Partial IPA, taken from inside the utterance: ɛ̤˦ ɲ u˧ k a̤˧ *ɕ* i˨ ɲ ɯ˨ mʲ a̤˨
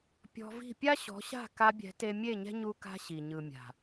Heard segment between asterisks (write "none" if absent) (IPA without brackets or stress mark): ɕ